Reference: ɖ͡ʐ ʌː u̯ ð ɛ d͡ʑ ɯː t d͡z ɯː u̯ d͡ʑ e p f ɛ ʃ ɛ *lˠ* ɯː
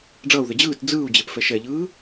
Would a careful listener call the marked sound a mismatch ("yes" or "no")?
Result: yes